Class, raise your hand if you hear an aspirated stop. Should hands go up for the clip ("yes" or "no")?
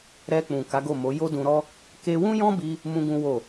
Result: no